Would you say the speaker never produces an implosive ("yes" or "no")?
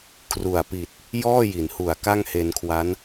yes